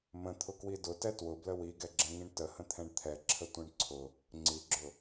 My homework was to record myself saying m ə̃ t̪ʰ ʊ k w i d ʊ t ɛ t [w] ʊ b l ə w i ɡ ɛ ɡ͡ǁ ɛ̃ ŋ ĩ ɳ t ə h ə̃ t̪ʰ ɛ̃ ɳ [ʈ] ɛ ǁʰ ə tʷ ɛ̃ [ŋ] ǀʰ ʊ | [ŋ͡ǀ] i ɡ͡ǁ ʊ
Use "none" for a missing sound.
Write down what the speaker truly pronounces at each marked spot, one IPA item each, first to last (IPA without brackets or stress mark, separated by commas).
w, t̪ʰ, ɳ, ŋ͡ǀ